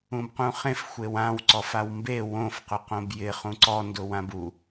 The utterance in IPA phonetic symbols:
ũ b q ũ χ ẽ f xʷ e w ã w ǀ ɔ f a w m b e w õ f q ʊ q õ b j ɪ χ ũ ǀ ɔ n d ʊ w ã b u

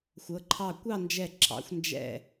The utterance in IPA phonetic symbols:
xʷ ɤ˩˧ ǃʰ ɑ˧˩ kʷ ɑ˥˧ n d͡ʒ ɛ˧˩ ǁ ɑ̰˩˧ xʷ n d͡ʒ ɛ̰˧˩

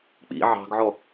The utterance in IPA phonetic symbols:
k͡p ḭ ʕ ɑ̤ ɡ ʕ ɔ

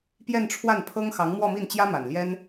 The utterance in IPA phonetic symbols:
p j ɛ˥˧ n ʈ͡ʂʰ w a˥˩ n pʰ ɤ˥ ŋ x ɑ˧˥ ŋ m w ɔ˥˧ m i˥˩ n t͡ɕ j ä˥ m a˨˩ n l j ɛ˥ n

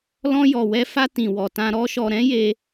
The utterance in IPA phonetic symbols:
l ɔ̃˧ j ɔ˨ w ɛ˧ f a˧ t ĩ˨ w ɔ˨ t ã˧ ɾ ɔ˦ ʃ ɔ˧ ɾ ɛ̃˦ j e˧

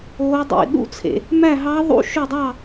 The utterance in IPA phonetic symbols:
oː˦˥ dˤ ḭ˧˩˧ ɗ ṵ˥˧ t͡sʰ ḛ˧˩˧ | m æ˥˧ ɦ ɑ˦˥ ðˤ ṵ˦˥ ʃ ø˥˧ dˤ ɑ˥˧

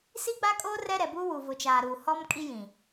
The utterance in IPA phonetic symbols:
s i˦ ɡ͡b a˦ kʼ oː˦ r ɛ˦ ɾ ɛ˨ b u˦ w u˨ v ʊ˨ t͡ʃ aː˨ ɾ uː˨ h ɔ˦ m kʼ i˦ j ĩ˨

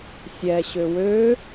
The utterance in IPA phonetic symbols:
sʲ ɛ ɕ ø w ø

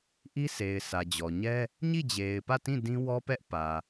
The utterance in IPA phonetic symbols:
ʔ i˦ s e˨ ɪ̯ sʰ ä˨ d͡ʑ ɔ˨ ɲ ɛ˦ | ɲ i˦˨ d͡ʑ e˨ ɪ̯ p ä˦˨ t ĩ˦˨ d ĩ˦ w ɔ˦ p ɛ˦ ʔ p ä˨

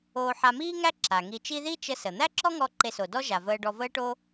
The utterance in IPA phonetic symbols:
oː˧ ħ a˧ m iː˥ ŋ æ˥ ǁ a˩ ŋ i˧ t͡ʃ i˥ ð i˥ t͡ʃ ə˧ s ə˩ n̪ æ˥ ǁ ɔ˥ ŋ ɔ˧ ǃ e˧ s o˩ d ɔ˥ ʒ a˩ v əː˧ ɖ ɔ˧ v əː˥ ʈ o˥

